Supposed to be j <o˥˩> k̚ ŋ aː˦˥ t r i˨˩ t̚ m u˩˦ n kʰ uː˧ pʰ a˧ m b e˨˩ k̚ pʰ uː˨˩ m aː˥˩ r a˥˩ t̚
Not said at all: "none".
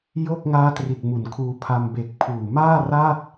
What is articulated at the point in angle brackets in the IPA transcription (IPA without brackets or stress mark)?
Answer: o˥˩